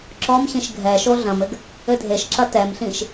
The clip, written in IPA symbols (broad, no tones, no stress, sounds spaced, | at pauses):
ǁ ɔ m ɕ ĩ ʃ ɡʱ ɛ ʃ o ɮ ɐ̃ m ɘ ɡ | ɘ dʱ e ʃ ǁ ɐ t ɛ m ɬ ĩ ʃ